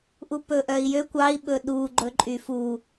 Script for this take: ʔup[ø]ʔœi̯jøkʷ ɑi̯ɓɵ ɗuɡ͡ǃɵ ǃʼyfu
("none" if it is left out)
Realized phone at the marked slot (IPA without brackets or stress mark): ɵ